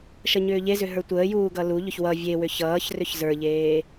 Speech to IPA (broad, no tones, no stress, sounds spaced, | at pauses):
ʃ ʌ ɲ ʏː ʎ e z ʏ ɦ ə˞ tʷ əː j uː ɡ ʌ l u ʎ ʏ ç w ʌ vʲ e w ʏ ç ʌː ç r ʏ ç z ə˞ ʎ eː